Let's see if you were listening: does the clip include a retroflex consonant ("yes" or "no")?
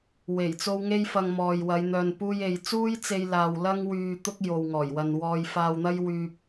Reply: no